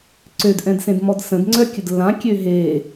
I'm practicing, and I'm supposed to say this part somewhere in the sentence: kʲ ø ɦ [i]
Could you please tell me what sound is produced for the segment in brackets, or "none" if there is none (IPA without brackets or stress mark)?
e